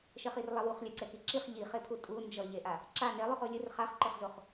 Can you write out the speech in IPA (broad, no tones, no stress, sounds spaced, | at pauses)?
ʃ ɛ χ i r lˠ ɛ w u χ lʲ a ǀ ɛ k i ǁ i χ ʎ i χ e pʰ u tʼ u n d͡ʒ ʌ ʎ e ʔ a | ǁ a n e lˠ u χ o lʲ ɯ r χ a χ ǃ e χ z o χ